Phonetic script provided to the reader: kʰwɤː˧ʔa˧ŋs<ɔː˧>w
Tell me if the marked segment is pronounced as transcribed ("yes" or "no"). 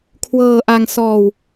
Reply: yes